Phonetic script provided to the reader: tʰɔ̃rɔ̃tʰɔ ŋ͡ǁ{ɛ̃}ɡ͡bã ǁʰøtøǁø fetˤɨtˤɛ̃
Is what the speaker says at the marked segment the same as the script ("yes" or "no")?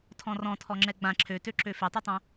no